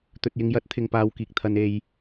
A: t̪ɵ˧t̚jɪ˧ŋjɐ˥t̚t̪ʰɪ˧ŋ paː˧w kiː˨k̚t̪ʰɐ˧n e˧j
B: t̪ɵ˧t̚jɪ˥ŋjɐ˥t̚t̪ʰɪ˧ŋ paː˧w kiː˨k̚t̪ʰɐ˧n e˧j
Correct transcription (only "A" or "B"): A